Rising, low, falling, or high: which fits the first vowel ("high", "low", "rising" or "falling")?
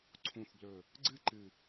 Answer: low